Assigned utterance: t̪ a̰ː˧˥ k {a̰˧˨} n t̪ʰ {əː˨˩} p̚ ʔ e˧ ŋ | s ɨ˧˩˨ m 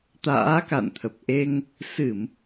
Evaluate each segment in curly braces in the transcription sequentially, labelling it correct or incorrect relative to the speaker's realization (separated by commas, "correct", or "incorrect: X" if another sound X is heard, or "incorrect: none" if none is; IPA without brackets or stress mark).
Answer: correct, incorrect: ə˨˩